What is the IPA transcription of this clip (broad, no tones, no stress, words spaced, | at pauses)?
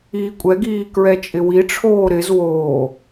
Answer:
iːkʷʼɛɡiː kɹɛt͡ʃʼɪwiʈ͡ʂʰoː ɾɪz woː